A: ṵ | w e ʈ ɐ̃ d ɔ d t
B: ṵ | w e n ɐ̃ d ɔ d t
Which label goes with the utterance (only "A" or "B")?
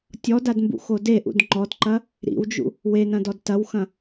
B